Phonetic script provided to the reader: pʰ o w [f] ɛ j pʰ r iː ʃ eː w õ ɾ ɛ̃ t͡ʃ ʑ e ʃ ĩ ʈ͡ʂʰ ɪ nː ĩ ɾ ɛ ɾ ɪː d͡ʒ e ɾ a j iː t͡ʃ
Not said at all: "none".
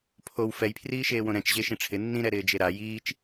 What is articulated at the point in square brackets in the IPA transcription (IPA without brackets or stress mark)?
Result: f